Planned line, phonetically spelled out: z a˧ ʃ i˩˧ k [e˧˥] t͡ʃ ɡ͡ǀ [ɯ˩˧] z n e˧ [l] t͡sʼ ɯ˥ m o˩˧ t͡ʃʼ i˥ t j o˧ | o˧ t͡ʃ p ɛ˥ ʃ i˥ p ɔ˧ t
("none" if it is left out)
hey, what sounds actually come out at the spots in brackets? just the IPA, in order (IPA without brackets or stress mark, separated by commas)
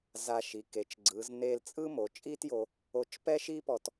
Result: e˩˧, ɯ˩˧, l